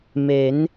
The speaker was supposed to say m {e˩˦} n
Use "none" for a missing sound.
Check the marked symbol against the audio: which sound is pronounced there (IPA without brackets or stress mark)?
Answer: e˩˦